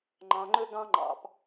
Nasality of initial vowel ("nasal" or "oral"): nasal